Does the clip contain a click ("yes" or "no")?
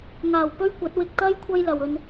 no